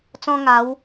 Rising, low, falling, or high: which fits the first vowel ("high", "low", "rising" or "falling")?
high